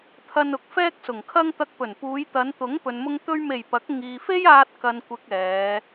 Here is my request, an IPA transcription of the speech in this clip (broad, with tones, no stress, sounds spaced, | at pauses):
t̪ʰ ɐ˥ n ʊ˨ k̚ f ɛː˥ k̚ s ʊ˨˩ ŋ kʰ ɐ˥ ŋ t̪ ɐ˧ k̚ p ɵ˨˩ n p uː˨˧ j t̪ ɐ˨˧ n t̪ ʊ˨˥ ŋ p ɵ˨ n m ʊ˧ ŋ t̪ ɵ˧ ɥ m e˨˩ j p ɐ˨˥ k̚ ŋ iː˨ f e˥ j aː˧ t̚ k ɐ˧ n kʷ ɪ˧ k̚ ɛː˨˧